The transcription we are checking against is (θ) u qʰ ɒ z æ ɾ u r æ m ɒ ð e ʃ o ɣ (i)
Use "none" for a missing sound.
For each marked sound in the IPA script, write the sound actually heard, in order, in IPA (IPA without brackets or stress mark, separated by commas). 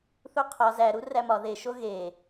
θ, e